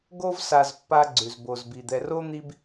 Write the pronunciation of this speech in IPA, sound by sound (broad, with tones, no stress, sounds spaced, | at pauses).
ɡ o˦ v s a˨ z pː a˦ ɡ͡ǀ ʉ˩ z b o˨ z b i˨ d̪ ɛ˨ r o˥ n̪ i˦ b